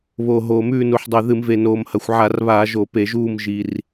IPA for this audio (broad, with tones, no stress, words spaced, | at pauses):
βo˨˩ ɦoː˨˩mʉː˦˨nu˨˩ħdˤʉ˨˩ ðɨ˧˩˧mve˨˩ noː˨˩mhɐ˨˩xʷʕa˧˩˧rβaː˧˩˧ ʒo˧˩˧pe˧˩˧ʒuː˦˨m ʒi˨˩r